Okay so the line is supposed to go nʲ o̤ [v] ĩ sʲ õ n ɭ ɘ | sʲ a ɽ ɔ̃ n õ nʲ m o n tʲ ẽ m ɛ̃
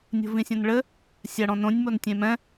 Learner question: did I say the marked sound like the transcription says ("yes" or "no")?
yes